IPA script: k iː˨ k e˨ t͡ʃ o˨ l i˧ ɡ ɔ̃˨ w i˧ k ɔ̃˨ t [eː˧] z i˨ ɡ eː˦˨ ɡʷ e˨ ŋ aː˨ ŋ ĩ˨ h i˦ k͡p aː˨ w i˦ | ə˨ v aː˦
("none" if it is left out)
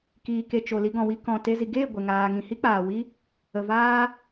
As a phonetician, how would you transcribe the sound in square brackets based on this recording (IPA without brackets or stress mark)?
e˧